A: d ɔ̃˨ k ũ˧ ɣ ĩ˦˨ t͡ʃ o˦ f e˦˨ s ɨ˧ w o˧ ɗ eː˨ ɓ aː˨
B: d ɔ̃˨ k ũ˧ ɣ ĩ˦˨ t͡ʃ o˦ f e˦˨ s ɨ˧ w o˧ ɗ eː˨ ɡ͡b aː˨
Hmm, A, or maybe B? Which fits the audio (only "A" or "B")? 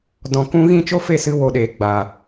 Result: B